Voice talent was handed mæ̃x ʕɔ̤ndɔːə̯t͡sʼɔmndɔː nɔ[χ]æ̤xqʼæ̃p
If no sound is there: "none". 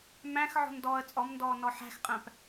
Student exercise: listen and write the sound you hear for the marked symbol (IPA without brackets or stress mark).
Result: ħ